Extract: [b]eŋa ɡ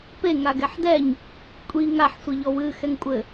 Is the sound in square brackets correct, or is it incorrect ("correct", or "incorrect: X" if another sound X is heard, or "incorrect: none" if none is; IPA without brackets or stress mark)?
incorrect: p